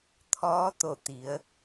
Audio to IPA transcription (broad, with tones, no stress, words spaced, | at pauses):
t̪ʰɔː˧˥t̪o˧˩ t̪i˩˧ə̯